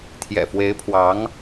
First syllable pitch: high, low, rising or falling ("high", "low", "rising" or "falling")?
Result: low